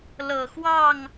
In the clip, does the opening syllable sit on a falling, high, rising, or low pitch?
low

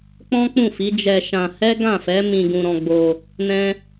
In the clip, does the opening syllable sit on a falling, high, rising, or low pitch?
high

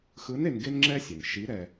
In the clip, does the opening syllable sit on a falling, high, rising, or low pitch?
rising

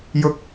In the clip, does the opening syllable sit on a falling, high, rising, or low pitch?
high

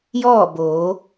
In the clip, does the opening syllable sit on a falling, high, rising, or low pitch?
falling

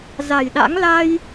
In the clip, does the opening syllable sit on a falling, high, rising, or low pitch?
low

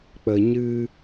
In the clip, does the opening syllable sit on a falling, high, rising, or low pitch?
low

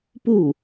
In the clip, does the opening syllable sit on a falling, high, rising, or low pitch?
falling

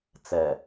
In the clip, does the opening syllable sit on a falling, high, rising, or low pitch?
low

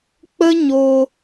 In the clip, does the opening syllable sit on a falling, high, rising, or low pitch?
high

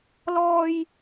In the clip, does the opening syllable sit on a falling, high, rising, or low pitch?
high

